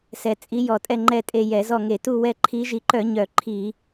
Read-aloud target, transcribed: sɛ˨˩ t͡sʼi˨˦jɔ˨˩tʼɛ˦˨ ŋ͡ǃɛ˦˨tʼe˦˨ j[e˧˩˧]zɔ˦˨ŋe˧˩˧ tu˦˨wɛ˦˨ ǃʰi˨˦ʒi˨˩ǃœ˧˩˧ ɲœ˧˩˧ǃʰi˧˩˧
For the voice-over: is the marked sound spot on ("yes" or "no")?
no